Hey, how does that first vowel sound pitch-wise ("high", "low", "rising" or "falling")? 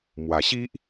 low